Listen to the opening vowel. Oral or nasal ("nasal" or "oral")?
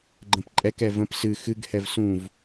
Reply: nasal